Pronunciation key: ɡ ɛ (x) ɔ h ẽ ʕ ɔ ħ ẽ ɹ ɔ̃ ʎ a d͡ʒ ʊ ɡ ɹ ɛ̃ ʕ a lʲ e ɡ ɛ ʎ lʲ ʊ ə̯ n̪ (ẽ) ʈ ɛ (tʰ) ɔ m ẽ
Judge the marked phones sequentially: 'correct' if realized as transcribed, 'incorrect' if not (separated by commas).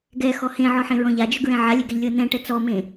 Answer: correct, incorrect, incorrect